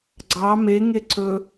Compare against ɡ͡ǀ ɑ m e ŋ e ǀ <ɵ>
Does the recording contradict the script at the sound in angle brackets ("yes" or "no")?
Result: no